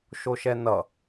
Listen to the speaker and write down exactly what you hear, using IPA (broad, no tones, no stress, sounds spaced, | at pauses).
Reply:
ʃ o ʃ ɛ n ʌ